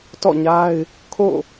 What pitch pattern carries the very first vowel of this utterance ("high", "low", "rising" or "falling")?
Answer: falling